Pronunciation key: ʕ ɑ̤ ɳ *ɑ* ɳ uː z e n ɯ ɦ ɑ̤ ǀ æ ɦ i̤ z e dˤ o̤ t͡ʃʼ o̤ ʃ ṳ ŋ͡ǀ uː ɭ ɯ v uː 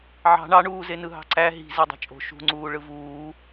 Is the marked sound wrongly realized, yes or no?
no